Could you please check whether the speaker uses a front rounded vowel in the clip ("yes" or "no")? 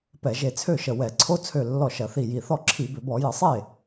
yes